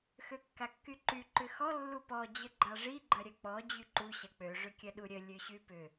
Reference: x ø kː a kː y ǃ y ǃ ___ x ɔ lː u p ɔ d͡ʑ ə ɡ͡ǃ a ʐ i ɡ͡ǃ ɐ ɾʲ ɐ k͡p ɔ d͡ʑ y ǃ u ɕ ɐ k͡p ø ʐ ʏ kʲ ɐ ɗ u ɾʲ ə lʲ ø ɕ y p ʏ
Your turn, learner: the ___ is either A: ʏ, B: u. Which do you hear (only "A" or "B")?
A